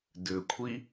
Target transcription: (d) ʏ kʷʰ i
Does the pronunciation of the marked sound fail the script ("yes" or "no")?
no